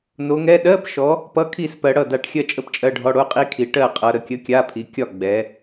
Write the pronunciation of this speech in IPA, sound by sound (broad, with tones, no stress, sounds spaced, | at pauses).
n o˨˦ ŋ ɛ˧˥˧ ɗ ɜ˧˥˧ p ʃ ɔ˨˦ | p ʌ˧˥˧ kʰ i˥˩ s p ɜ˨˦ ɽ ʌ˥˩ d a˥˩ ʈ xʲ ɜ˥˩ t͡ʃʼ ə˧˥˧ p t͡ʃʼ ɜ˧˥˧ ɖʱ ɔ˧˥˧ ɽ o˧˥˧ qʼ i˧˥˧ kʰ i˨˦ ʈ ɜ˥˩ qʼ ʌ˨˦ ɾ ə˨˦ kʲ ə˧˥˧ kʲ a˧˥˧ pʰ i˨˦ kʲ ɒ˥˩ ɡ͡b ɛ˨˦